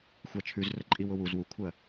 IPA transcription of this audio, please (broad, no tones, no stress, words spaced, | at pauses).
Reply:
xʷat͡ʃʰʉzrəǃʼiw ʊwuz wukʷʰɜ